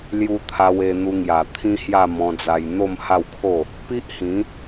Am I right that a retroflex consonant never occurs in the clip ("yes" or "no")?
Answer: yes